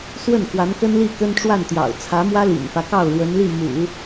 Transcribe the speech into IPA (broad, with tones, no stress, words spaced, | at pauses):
swə˥˩nkwa˧˥n kə˥nli˥˩ kə˥nʈ͡ʂwa˥˩n t̪jɑ̰˨˩ʊ̯t͡sʰä˧˥mwä˥ lḭ˨˩nfä˦kɑ˥˩ʊ̯ ɻwə˧˥nli˥˩ mṵ˨˩˦